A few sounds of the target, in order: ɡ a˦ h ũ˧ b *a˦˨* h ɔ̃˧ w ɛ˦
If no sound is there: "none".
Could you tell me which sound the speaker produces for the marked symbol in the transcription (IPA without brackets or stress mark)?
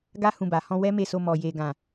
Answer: a˨